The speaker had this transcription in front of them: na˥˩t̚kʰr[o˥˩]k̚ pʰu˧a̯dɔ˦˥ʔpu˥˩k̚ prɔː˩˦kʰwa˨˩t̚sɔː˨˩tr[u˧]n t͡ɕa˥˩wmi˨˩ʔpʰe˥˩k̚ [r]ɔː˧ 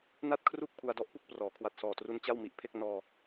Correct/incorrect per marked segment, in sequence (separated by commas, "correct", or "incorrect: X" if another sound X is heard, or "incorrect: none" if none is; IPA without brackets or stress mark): incorrect: u˥˩, correct, incorrect: n